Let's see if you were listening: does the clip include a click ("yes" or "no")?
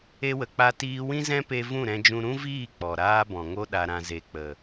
no